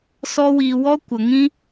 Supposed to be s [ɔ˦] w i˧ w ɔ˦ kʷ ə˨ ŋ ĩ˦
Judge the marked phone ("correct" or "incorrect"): correct